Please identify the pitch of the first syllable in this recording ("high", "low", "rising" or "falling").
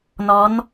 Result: rising